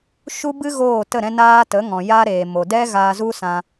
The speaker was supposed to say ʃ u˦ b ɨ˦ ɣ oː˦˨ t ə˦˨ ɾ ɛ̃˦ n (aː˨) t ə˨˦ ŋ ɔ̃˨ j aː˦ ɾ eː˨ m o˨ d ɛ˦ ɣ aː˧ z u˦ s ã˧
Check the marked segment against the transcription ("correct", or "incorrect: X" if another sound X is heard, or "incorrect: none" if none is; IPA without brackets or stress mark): incorrect: aː˦